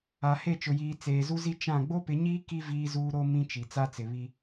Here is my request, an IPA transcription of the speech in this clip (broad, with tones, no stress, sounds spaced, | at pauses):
a˨ h e˦˨ t͡ʃ ʊ˨ j iː˨ t͡s eː˨ z u˦ z i˦ t͡ʃ ã˦˨ ɡ͡b o˦ p ɪ˨˦ ɲ iː˦ k i˦ v iː˦ z uː˦ ɾ o˦ m ĩ˦ t͡ʃ i˨ t͡s a˦ t͡s ɪ˨ β i˦